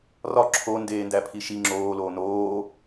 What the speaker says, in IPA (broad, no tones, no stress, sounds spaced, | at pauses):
r ɒ ǁʰ o n d eː n d æ pʰ i ʃ i ŋ͡ǁ oː l oː n oː